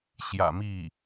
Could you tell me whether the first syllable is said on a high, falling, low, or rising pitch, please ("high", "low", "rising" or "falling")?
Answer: low